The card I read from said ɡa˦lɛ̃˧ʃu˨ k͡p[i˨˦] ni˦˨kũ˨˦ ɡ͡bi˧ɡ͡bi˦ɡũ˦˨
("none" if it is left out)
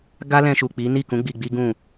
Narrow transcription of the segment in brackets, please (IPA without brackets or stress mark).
i˨˦